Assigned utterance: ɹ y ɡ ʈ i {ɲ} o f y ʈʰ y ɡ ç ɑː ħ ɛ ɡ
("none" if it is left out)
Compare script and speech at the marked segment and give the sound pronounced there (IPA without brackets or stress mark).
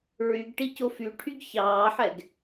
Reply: c